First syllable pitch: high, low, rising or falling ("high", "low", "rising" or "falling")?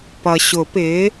low